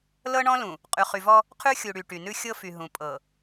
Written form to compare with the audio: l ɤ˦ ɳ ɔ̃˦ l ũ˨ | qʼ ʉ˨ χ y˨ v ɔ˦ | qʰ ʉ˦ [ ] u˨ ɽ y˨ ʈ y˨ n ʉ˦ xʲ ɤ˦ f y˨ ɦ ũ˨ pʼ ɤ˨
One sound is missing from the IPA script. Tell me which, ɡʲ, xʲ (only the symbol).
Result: xʲ